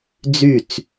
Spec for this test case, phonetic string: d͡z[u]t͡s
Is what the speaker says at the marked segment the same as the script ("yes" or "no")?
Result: no